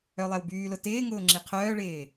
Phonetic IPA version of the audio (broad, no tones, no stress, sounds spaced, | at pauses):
œ lˠ ɛ w b yː l ʊ t ɪː ŋ ʊː ŋ͡ǁ i qʰ œː ɭ ɪː